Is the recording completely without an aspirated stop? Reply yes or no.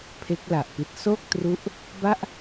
no